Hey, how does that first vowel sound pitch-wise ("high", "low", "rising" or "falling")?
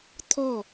falling